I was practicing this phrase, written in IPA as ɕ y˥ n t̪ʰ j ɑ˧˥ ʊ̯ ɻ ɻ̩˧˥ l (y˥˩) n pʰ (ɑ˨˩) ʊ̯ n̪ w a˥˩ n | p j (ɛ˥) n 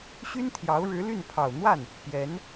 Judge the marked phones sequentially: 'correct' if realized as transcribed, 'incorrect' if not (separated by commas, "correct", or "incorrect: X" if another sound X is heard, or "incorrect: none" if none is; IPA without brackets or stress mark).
correct, correct, incorrect: ɛ˧˥